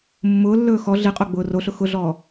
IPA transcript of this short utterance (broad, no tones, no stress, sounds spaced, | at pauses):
mː ʊː lː ɵː x ɔ ɮ i qʼ o ɡ͡b ʊː r o ɬ ʊ x ʊ ɮ ɔː